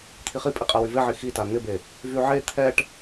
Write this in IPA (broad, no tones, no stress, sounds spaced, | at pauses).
t̪ʰ i χ i pʼ e qʼ a w y v e ʕ i x i t a n̪ ɪ b e | v y ʕ e t̪ʰ ɛ ʈ